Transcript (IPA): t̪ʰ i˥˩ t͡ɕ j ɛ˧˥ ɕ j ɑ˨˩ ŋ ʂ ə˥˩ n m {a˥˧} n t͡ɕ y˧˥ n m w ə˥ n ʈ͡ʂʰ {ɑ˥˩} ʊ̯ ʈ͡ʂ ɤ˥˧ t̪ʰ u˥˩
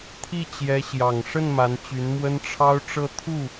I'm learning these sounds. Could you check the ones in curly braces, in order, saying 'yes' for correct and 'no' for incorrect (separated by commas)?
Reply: no, no